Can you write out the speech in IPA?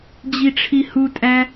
d͡ʑ i ʈ͡ʂʰ i h u tʼ æ

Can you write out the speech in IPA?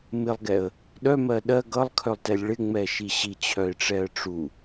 m ɪ lˠ ɡ ɛ ə̯ | ɗ œ m ɜ ɗ ɜ ɡ ʌ lˠ kʰ œ lˠ t ɛ lʲ ɭ ɪ ŋ͡m ɛ ʃ i ɕ i t͡ɕʰ œ ɪ̯ ʈ͡ʂ ɛ ə̯ ʈ͡ʂ u

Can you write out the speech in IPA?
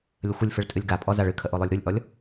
lʲ ə xʷ ə lʲ f ɨ ɭ tʼ ɨ lʲ ɡ a pʼ ɔ z a ɭ ɨ kʰ ə ʔ o lˠ o lʲ ɾ u lʲ ʔ ɔ lʲ

